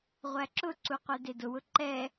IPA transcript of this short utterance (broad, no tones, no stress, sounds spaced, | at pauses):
ʁʷ æ ǁ ʊ ǀ u qʷ ɛ d e d ʊ w ʊ ǃ ɛ